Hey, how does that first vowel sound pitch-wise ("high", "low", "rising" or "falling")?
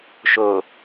low